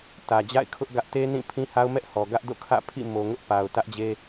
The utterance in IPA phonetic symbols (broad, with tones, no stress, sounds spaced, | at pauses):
t ä˨ d͡ʑ a̰˦˨ ɪ̯ kʰ ʊ˦ ʔ ɡ ä˦ ʔ t e˦ n ĩ˦˨ pʰ ĩ˦ h a˦ ʊ̯ m ɛ˦ ʔ h ɔ˨ ɡ ä˦ ʔ d o̰˦˨ kʰ ä̰˦˨ pʰ ḭ˦˨ m o˨ ŋ ʊ˦ ʔ p a˨ ʊ̯ t ä˦ ʔ d͡ʑ e˦